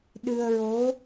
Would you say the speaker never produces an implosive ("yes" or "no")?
no